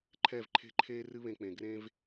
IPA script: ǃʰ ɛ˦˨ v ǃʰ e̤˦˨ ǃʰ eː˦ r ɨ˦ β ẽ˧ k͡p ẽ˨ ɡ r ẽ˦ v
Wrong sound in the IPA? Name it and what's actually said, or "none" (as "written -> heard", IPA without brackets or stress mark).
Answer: none